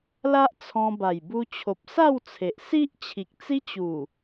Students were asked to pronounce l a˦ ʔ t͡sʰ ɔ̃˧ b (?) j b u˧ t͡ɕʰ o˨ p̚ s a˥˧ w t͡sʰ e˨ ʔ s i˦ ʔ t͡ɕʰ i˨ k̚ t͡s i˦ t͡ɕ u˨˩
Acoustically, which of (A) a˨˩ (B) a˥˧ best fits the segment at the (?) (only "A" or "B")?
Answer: A